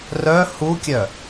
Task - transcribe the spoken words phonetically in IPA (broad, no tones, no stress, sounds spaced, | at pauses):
r œ h u kʲ œ